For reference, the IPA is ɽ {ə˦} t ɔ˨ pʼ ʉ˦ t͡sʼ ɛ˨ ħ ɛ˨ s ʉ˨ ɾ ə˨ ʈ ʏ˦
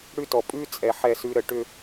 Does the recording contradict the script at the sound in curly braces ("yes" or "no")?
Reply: yes